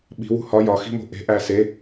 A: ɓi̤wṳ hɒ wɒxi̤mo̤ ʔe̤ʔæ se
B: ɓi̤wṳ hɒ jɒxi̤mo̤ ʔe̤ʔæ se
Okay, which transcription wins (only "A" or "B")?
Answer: B